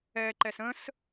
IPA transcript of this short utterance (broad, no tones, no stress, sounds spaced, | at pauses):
ɛ ǃ ɛ s ə̃ s